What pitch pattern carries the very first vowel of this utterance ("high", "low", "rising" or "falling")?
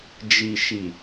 low